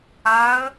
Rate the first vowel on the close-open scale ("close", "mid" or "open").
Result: open